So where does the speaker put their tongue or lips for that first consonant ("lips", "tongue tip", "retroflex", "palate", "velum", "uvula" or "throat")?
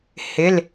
throat